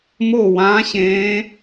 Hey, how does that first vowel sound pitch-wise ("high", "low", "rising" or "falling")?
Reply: falling